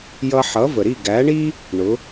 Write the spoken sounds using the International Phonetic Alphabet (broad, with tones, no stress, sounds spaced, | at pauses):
j ʌ˧ ħ ʌ˩˥ v ə˩ ɾ i˥˩ ɡ æ˩˥ ɳ i˥ | ɳ ʊ˩˥